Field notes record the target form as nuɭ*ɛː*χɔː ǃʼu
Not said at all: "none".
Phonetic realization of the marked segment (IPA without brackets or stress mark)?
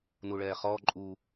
ɛː